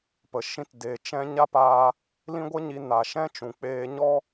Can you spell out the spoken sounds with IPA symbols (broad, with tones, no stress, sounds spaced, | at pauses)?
p ə˨ ʃ ĩ˧ t d e˨ t͡ʃ ɛ̃˧ ɲ a˦ p aː˧ | l ĩ˦ ɡʷ ə˦ ɲ i˧ n a˨ ʃ ɛ̃˦ t͡ʃ ũ˨ k͡p eː˧ ɲ ɔ˦